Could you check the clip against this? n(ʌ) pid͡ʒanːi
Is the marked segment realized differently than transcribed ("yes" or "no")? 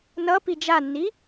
no